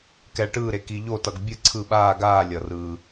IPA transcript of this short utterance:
k ɛ˨ ɭ ʈ ɯː˦˨ ɾ e˨ k i˨ ʎ o˦˨ t ʌ˨ ɡ bʲ ɯ˦˨ ǀʰ ɯ˦˨ ɓ aː˦˨ ɡ aː˦˨ lʲ ʌ˨ r ɯː˨

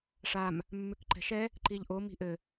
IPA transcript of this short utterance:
ʂ a m | mː ʉ k ǃ ɛ̤ ʃ ɛ | ǃ i ʎ ʔ o m i̤ ʔ ɘ

